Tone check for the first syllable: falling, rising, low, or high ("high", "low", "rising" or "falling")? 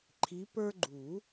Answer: rising